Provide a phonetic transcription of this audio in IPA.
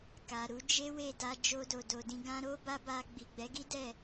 k a˨ ɾ u˨˦ d͡ʒ e˦ w e˦˨ d a˧ d͡ʒ o˧ d o˨ d o˨ d ĩ˧ ɡ ã˦ ɾ o˦ b a˦ b a˧ ɡ͡b i˨ ɡ͡b ɛ˨˦ ɡ i˦ d ɛ˦˨

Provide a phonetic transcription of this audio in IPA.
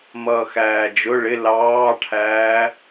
m ʌː x æː d͡ʒ ʊ ɭ ɪ l ɑː ʈʰ æː

